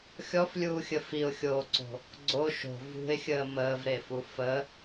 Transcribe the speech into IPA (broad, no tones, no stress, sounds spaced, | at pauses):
xʲ ɔ f lʲ uː xʲ ə f i ʊ̯ xʲ oː ǀ o̤ | ɡ͡ǀ o ʃ o̤ v ṳ ɪ̯ xʲ əː m əː v ɾ e f u f ə